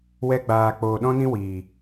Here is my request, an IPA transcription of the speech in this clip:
wɛ˧ ɡ͡baː˨k͡poː˨ ɗɔ̃˦nĩ˦ wiː˨

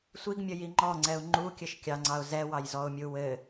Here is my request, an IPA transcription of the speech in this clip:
sʷiɡmʲəji ŋ͡ǃɔŋ͡ǀɛʊ̯ ŋ͡ǃukʲɘʃ kʲɑŋ͡ǀɑʊ̯ zɛwɑjzɔʊ̯mʲu wɘ

